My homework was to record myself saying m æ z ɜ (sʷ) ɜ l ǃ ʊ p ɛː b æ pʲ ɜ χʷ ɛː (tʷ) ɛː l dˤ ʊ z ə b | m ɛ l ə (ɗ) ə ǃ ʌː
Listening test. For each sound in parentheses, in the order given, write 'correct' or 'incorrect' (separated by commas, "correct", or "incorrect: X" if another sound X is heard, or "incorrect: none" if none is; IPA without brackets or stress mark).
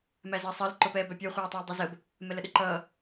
incorrect: sˤ, incorrect: tˤ, correct